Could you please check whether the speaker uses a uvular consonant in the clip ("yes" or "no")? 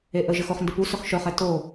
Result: yes